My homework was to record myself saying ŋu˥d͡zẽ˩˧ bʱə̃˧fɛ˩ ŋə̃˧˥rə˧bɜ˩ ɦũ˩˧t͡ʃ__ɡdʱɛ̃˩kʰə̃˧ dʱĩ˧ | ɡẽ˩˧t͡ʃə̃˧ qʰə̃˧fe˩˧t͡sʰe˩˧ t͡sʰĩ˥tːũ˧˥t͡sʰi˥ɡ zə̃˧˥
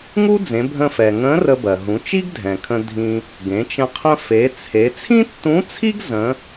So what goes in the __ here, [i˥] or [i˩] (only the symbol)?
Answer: i˥